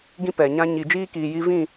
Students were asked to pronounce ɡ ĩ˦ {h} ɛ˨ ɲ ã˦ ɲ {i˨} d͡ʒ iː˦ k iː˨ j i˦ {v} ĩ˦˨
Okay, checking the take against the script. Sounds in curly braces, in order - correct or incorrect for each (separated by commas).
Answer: incorrect, correct, correct